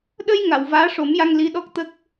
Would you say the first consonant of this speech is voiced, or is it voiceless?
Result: voiced